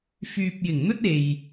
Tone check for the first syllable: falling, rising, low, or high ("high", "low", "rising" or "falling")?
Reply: low